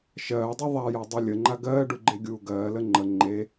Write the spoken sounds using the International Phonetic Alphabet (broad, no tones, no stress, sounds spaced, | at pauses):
ʃ ɜː dˤ e ðˤ a j a dˤ u lʲ ə ŋ͡ǃ a ɡ ɜː ɖ u ɡ͡ǃ e ɡʲ uː ɡ ɜː l ə ŋ͡ǃ ə ŋ͡ǃ e